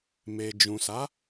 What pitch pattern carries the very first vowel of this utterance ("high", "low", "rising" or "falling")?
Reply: low